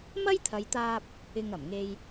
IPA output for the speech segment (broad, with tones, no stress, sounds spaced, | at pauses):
m ɐ˥ j t̪ʰ ɐ˨˧ j t̪ aː˧ p̚ | ɪ˧ ŋ ɐ˨˩ m ŋ e˧ j